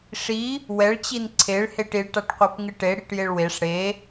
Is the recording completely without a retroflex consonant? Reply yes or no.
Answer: no